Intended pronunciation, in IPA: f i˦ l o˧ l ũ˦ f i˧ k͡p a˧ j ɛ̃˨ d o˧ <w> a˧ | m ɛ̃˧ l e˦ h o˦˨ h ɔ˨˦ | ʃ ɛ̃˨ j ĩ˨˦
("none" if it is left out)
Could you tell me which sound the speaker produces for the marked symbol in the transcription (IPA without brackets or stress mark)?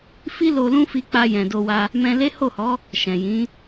w